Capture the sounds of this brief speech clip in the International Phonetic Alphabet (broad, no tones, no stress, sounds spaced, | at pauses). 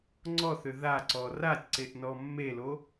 ŋ͡ǀ ɔ θ ʏ ð a ǀ ɔ r a tʲ ǀ e ʔ n ɔ mː e l o